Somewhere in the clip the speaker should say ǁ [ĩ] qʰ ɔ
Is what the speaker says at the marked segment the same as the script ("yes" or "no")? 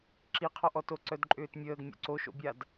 no